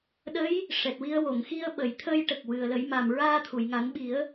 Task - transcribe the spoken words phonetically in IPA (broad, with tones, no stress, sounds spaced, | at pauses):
ɗ ə˧˥ j | ʂ ɛ˨˩ t̚ w i˧ ə̯ w o˨˩˨ ŋ x i˧ ə̯ ɓ ə˨˩˨ j t̪ʰ ə˧ j ʈ ə˨˩ k̚ w ɨ˨˩ ə̯ l ə˨˩˦ j m a˨˩ m ɹ aː˧ t̪ʰ u˨˩˨ j ŋ a˨˩˦ n ɓ i˨˩˦ ə̯